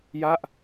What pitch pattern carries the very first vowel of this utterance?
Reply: falling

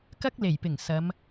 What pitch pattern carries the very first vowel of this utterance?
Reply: high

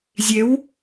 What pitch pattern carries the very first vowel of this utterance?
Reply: rising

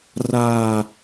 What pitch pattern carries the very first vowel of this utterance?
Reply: falling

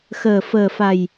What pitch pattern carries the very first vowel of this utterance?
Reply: low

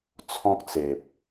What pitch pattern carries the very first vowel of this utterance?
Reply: high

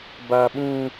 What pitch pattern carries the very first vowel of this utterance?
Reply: high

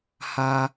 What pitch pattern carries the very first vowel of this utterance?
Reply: high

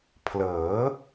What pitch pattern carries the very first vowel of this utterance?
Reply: rising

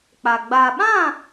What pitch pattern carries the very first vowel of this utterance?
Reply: low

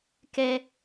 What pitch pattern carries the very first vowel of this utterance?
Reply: high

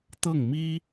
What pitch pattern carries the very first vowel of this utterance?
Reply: falling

